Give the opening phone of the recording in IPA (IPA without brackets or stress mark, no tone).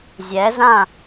zʲ